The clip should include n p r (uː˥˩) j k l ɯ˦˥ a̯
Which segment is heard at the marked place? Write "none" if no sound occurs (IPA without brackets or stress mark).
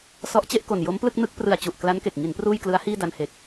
uː˥˩